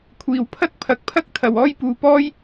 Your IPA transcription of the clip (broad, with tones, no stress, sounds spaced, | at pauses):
kʷʰ iː˨ w pʰ ɐ˥ t̚ pʰ ɐ˨˥ k̚ pʰ ɐ˥ k̚ t̪ʰ ɐ˨ w ɔː˥ j p uː˨ p ɔː˥ j